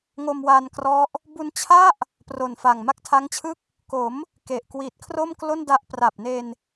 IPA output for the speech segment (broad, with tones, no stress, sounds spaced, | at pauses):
ŋ o˧ m w a˧ n k r ɔ˦˥ ʔ | b u˧ n t͡ɕʰ a˥˩ ʔ | p r o˨˩ n f a˨˩ ŋ m a˦˥ k̚ tʰ a˦˥ ŋ t͡ɕʰ ɯ˥˩ k̚ | k o˩˦ m | k e˨˩ ʔ k w i˨˩ t̚ kʰ r o˥˩ m k l o˥˩ n d a˦˥ ʔ p r a˨˩ p̚ n e˧ n